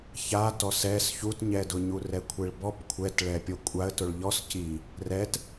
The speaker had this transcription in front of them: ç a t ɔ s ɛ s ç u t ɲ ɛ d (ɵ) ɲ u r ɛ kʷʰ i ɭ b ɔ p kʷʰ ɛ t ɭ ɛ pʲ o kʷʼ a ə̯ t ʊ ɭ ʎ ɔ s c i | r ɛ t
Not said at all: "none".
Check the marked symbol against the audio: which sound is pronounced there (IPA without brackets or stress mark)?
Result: ʊ